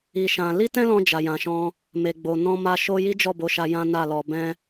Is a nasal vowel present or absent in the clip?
present